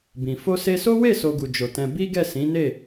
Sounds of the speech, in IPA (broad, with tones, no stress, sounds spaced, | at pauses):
b ĩ˨ f o˧ s e˧ s o˦ w e˦˨ s o˧ ɡ u˨ d͡ʒ o˨ t ɛ̃˧ b i˦ ɡ ɛ˦˨ s ĩ˨˦ n e˦˨